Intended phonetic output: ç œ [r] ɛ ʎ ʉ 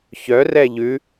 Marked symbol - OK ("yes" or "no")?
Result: yes